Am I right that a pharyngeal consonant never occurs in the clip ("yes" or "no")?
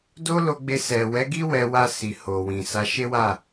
yes